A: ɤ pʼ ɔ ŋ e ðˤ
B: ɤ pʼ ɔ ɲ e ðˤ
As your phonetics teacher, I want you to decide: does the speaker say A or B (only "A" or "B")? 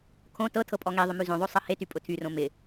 A